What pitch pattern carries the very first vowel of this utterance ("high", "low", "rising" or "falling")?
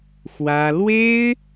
high